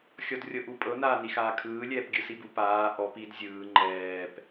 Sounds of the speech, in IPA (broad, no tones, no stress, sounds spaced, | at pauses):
xʲ ɔ d rʲ ɤ ʔ u pʼ ɤ n aː n i x aː kʰ ɯː lʲ ɛː p ɡʲ ɯ s i b u p aː ʔ ɔ p i d zʲ ɯː ŋ͡ǃ ɛː p